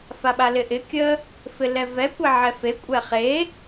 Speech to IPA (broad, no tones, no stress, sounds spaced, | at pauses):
f a ɓ a l ɪ ʔ ɪ kʲ ə | f ɪ l ɛ v ɛ kʷ ɛ ʕ ɛ f e kʷʼ ɛ χ e